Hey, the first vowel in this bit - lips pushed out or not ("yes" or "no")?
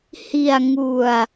no